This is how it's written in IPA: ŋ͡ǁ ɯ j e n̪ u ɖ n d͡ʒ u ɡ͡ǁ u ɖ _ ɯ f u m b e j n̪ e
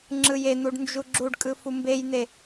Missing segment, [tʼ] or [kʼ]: kʼ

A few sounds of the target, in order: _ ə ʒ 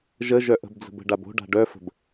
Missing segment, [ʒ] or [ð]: ʒ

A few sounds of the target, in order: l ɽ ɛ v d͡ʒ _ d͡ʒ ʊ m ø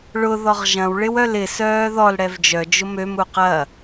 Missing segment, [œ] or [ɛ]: œ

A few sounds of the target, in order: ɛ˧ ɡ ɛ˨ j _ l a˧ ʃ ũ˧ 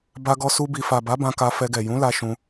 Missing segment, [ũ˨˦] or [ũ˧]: ũ˨˦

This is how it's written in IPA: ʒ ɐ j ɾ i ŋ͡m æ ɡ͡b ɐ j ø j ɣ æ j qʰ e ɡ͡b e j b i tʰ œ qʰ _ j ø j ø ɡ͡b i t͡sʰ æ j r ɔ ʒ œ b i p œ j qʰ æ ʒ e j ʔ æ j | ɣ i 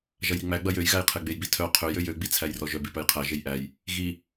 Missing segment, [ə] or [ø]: ø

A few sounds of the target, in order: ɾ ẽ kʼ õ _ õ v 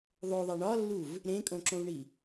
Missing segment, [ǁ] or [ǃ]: ǁ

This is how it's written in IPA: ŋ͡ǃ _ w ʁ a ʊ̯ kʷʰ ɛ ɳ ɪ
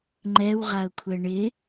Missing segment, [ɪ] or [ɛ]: ɛ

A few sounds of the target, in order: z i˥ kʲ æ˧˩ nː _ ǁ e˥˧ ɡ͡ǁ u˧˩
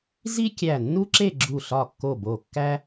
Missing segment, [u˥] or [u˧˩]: u˥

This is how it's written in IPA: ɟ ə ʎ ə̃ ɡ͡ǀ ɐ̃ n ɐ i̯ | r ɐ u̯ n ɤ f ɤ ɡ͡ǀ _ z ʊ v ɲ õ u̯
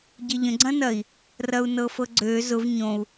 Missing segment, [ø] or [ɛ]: ø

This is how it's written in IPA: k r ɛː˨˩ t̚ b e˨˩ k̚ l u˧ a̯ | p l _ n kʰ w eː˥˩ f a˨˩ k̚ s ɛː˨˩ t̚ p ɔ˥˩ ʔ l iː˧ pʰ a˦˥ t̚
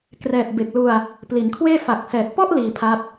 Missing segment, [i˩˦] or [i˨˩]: i˩˦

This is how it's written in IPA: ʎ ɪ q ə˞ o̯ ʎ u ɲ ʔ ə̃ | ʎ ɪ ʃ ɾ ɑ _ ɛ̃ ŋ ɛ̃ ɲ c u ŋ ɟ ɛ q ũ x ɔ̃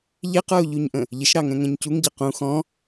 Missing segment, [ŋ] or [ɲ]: ŋ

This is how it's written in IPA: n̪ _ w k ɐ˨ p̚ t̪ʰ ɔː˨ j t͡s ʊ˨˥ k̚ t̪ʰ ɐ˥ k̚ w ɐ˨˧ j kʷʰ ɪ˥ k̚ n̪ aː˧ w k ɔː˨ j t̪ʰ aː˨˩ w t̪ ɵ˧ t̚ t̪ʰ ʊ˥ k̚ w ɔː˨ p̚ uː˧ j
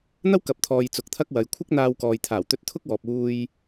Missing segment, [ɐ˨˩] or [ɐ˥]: ɐ˥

